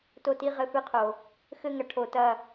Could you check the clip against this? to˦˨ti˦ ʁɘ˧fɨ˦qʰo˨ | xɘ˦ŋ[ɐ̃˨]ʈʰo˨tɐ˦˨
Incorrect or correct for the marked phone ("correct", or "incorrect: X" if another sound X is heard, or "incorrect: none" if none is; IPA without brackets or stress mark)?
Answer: incorrect: ɐ˨